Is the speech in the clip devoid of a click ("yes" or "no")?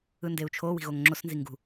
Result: no